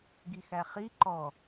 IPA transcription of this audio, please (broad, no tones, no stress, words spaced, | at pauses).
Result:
ɡixæχi ǃɔ